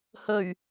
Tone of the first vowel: low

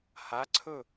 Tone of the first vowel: rising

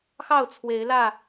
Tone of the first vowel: falling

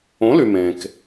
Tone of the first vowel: rising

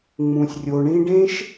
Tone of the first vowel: low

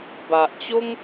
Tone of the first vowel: low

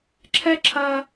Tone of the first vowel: high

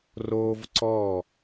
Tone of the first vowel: high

